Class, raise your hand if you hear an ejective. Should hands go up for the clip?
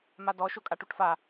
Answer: yes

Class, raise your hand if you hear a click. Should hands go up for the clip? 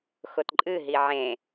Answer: yes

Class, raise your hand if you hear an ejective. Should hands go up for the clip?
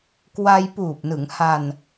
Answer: no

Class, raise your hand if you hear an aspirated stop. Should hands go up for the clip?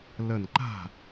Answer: no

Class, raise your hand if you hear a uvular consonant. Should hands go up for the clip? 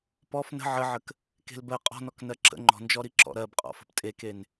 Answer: yes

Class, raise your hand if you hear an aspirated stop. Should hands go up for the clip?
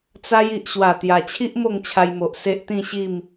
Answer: yes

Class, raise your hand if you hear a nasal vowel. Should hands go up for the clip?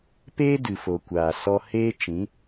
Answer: yes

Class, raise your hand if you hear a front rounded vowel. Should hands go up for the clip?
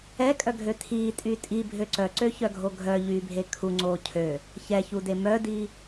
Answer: yes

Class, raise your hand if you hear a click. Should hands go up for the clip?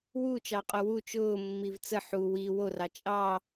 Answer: no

